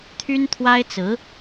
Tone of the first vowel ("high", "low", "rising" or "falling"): high